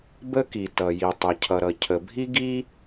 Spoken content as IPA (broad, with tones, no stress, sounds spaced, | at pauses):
b ə˥ k i˩ t ʌ˩ j i˩ tˤ ɐ˩ cʰ ʌ˩ ɾ ʌ˩ cʰ ə˩ bʱ i˥ ɡ i˥